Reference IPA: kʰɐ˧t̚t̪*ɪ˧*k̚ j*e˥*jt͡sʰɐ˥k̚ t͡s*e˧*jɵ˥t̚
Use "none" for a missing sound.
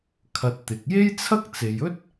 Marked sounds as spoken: ɪ˨, e˥, e˨

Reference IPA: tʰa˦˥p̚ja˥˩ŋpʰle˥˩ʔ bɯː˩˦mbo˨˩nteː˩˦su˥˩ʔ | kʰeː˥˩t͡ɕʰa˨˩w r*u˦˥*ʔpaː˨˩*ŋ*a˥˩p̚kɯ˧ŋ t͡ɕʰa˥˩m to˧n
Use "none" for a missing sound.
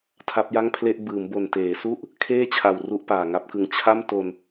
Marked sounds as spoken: u˥˩, ŋ

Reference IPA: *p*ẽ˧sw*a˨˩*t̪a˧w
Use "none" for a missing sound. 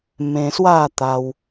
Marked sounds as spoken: m, a˥˧

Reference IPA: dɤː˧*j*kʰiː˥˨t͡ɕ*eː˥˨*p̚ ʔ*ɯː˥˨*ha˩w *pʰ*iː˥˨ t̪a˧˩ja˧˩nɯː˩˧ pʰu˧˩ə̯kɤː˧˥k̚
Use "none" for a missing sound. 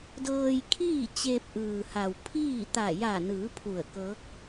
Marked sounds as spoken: j, eː˧, ɯː˩, pʰ

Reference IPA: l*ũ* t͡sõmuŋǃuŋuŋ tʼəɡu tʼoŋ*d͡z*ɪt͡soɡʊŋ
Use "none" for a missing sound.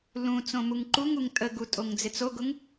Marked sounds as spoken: ũ, d͡z

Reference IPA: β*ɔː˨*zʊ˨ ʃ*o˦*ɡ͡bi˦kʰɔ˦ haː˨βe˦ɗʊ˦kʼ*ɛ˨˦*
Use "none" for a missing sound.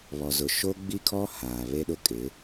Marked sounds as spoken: ɔ˨, o˦, ɪ˨˦

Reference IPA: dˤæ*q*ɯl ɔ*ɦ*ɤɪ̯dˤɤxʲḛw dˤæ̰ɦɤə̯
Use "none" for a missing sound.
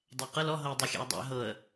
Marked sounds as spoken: q, ɦ

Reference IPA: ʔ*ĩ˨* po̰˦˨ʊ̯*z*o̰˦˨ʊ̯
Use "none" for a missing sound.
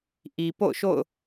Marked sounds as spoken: i˨, ʃ

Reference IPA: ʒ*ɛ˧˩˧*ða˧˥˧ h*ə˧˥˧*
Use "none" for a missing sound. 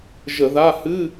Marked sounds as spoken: ə˧˩˧, ɨ˧˥˧

